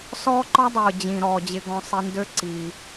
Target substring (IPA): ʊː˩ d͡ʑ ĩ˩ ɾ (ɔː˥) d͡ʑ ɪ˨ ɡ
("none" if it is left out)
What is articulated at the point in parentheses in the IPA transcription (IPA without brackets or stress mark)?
ɔː˩